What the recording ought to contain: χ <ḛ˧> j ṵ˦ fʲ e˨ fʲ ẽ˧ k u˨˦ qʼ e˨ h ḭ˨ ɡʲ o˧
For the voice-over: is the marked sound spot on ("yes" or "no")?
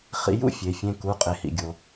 no